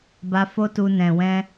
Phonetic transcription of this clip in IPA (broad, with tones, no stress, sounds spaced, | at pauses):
b a˧ f o˦ t u˧ n ɛ̃˨ w ɛ̃˧